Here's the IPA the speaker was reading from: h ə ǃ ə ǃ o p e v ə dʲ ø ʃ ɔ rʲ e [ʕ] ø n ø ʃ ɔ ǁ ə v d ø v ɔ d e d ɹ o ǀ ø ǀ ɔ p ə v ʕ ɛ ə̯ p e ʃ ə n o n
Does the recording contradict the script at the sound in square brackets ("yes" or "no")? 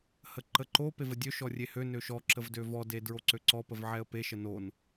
yes